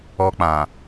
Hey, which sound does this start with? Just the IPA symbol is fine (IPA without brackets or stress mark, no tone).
ɔ